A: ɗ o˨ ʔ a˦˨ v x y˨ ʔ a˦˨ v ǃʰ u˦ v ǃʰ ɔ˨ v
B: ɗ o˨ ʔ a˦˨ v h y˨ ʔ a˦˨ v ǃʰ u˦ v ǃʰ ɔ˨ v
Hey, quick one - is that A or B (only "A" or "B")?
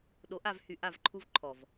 B